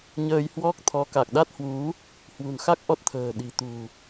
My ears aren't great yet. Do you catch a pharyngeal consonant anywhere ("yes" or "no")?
no